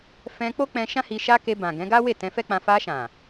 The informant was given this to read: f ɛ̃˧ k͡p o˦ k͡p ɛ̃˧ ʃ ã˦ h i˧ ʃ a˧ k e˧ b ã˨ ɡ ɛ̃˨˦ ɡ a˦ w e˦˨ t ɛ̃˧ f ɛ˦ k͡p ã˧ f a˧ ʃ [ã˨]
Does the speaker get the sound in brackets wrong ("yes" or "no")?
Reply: no